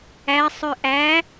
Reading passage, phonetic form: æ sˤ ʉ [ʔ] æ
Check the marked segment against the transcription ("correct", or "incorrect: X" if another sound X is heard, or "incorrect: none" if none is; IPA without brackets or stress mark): correct